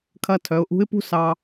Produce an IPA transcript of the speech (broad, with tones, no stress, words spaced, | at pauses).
kʰɐ˧tʰœ˩˧ʊ̯ʔṳ˧˥ɪ̯pṳ˥ sɑ˧